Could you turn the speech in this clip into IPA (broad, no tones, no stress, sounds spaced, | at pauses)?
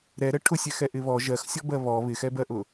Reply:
ɾ ɛ ɾ ɛ ʈʰ ʊ sʲ ɛ x ɛ ʔ ɪ β ɔ ʒ ɜ x sʲ ɔ b ɜ β ɔ β ɪ x ɛ b ɜ ʔ ʊ